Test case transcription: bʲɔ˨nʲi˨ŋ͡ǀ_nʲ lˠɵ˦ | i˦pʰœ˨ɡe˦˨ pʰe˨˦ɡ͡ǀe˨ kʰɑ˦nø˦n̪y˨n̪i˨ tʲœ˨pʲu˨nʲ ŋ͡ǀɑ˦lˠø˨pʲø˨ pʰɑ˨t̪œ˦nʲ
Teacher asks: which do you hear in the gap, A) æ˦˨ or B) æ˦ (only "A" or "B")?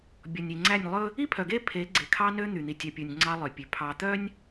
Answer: A